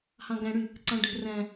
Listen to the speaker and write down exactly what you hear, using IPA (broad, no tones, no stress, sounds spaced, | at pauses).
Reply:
h ɑ̃ ɡ æ̃ ɽ y | ǀ ɑ̃ ɖʱ ə̤ r æ̃